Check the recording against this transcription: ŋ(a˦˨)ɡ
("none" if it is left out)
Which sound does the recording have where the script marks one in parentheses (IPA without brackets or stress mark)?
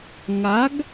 a˨˦